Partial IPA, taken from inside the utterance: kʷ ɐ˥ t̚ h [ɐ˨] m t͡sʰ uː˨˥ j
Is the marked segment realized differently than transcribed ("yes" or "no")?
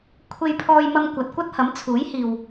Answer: yes